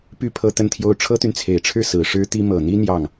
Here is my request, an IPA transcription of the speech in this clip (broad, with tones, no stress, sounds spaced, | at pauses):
p y˥˩ pʰ ɤ˥ t̪ ə˥˧ n t̪ʰ j o˥˩ ʊ̯ ʈ͡ʂʰ ɤ˥ t̪ y˨ n t͡sʰ e˨˩ ɪ̯ ʈ͡ʂʰ ɻ̩˥˩ s ɹ̩˨˩ ʂ ɻ̩˥ t̪ i˥ m ɤ˨˩ n̪ i˥ n̪ j ɑ˥˩ ŋ